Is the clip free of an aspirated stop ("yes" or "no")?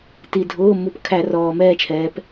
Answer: no